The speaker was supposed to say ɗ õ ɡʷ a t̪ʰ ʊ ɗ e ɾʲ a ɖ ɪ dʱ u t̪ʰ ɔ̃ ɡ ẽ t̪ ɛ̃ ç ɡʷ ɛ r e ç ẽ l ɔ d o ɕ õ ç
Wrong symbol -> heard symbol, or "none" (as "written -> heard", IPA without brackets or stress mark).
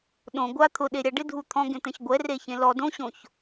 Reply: o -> õ